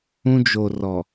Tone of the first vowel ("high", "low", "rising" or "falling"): high